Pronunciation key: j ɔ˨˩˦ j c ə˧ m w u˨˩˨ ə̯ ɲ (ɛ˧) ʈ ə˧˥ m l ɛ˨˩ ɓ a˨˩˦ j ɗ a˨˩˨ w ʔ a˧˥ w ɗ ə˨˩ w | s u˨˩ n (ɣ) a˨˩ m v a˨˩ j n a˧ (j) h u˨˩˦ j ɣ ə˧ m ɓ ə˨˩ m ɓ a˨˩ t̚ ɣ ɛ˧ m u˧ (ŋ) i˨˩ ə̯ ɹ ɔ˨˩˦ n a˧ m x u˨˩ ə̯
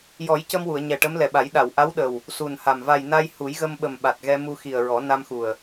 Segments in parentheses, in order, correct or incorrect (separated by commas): incorrect, incorrect, correct, incorrect